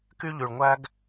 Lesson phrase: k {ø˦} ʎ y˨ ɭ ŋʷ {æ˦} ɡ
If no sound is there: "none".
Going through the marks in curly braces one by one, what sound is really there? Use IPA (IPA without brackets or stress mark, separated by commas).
y˦, æ˦